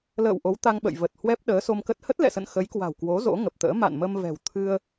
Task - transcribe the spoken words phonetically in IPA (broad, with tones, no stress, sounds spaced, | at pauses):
l ə̰ː˧˨ w ʔ o˨˦ w t̪ a˧ ŋ ɓ ə̰˧˨ j v ə˨˩ t̚ h w ɛ˦˥ p̚ ɗ əː˨˦ s o˧ m k ə˦˥ t̚ h ə˦˥ t̚ l ɛ̰˧˨ s ə̰˧˨ n x ə˨˦ j k w a̤˨˩ w k w o˨˦ z o̰˧˥ ŋ ə˨˩ p̚ t̪ ə̰ː˧˥ m a̰˧˨ n m ə˧ m v ɛ̤˨˩ w t̪ʰ ɨ˧ ə̯